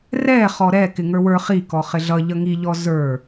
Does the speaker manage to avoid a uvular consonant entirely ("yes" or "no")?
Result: no